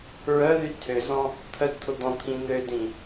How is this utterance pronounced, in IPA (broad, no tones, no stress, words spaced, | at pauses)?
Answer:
ɹœðy tʰøzɔ̃ | t̪ʰœdt̪ʰʊd̪ɔ̃t̪ʰĩ n̪ødĩ